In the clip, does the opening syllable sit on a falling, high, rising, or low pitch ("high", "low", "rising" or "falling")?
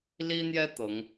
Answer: high